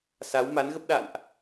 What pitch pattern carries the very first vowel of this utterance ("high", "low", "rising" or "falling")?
rising